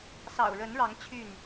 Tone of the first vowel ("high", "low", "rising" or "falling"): low